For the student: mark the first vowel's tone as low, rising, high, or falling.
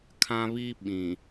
high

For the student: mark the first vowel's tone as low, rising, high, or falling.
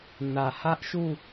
low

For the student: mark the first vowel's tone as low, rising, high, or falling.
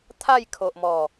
falling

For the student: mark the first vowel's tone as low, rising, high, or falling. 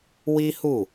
high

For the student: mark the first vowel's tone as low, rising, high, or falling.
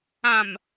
low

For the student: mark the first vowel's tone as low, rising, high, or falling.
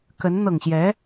rising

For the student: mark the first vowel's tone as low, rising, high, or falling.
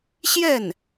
falling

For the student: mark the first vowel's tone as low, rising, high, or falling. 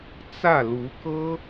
falling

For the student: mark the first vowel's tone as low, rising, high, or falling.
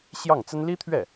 falling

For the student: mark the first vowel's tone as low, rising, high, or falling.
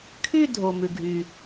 falling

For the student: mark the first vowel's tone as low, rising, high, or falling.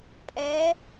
rising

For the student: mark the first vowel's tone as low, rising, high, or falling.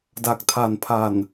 low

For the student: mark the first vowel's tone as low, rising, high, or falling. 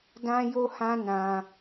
high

